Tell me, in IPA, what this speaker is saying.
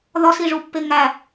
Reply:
ðɒsiʐupːe ŋæ

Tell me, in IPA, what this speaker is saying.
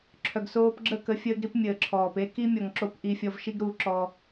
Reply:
ǁʰœ˨ɡsoː˧pɡ͡ǁə˦˨kə˧ fʲəː˦ɡɾi˦pmʲəː˨ǁʰɔː˨p e˦ ki˦mʲɔ˨ŋǁo˧p ʔi˧ fʲɔ˧vʃi˦ɡɾu˨˦ǁɔ˧

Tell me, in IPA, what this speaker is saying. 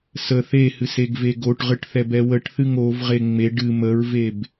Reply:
sə θehɨseɡve ɡoʈʁɨʈθɛbɛ wəʈθɨŋ ovʁe ŋ͡me ɖɨ məɹveb

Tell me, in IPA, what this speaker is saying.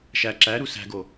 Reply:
ʃæ ǁæɾu sæ̤ɡo

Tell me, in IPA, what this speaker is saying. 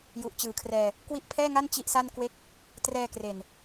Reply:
ju˨˩ʔt͡ɕɯː˨˩kʰrɛː˧ | kwi˦˥ʔpʰɛː˥˩ŋa˥˩n t͡ɕi˦˥ʔsa˥˩nkwe˥˩k̚ | trɛː˧kre˨˩n

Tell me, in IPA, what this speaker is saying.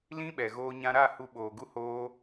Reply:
lĩ˦ɓɛ˨ɣoː˧ ɲã˧ɾa˦˨ hu˧ɓoː˨ɡu˦ hoː˦

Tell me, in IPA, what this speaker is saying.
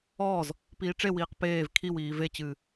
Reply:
ɔːz | piːʈ͡ʂewiːq peːv kʰiwiː vet͡ɕɨː

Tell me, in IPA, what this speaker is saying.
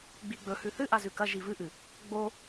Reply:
ɡ͡biɡ͡bɵ hʉθɨʔa zʉkɐ ʒivɨʔɨ | ɡ͡bo

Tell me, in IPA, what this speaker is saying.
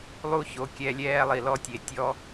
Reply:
lˠu˦ ço˧kʲɛ˧ lʲɛː˦lˠi˨lɔ˦tʲe˨ tʲɔ˦

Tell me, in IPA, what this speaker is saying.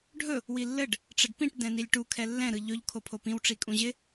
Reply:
ɖʱɵ | wilːɘɖ | ʈ͡ʂɘɖpĩʈ dɛ̃nilʲʈu kʰɛlːɛ̃ ɾɯʎɵʎ kʰopʰopĩw ʈ͡ʂikʼũʑɪ

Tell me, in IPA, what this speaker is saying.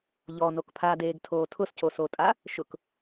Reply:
ʎɔnok pʰadeːɡtʰoː tʰʊscosotʼa | ʃʊk

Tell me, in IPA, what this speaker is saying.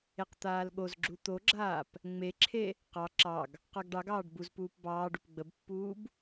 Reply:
eqt̪aːlɠozɡ͡ǁu t̪oɡ͡ǁaːp | ŋ͡meǁʰe | qɑ ǁɑɡ | qɑɡɖɑɡɑːɖ buzpuːp bɑːɖ upɡ͡bəbpːuːb

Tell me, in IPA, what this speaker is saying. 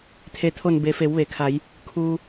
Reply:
t̪ʰe˩˧t̪ʰo˧˩n be˩˧fe˩˧wʋe˩kʰa˩˧j | kʰuː˧

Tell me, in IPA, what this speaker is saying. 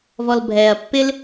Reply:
vɔlbʱɛːɐ̯pːɪl

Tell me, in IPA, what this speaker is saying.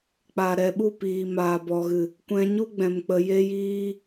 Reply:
k͡paː˨ ɾɛ˨ɓu˦˨ piː˨maː˨bɔ˨ɣɨ˨ | kʷɛ̃˧ɲu˦ɡ͡bɛ̃˨mk͡pə˨ je˦jiː˦

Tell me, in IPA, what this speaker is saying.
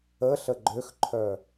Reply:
əɬə ɡ͡ǃøxǃʰœ

